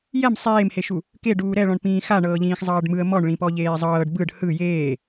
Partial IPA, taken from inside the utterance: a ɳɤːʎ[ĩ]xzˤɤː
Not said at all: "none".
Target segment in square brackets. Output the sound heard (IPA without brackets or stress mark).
ĩː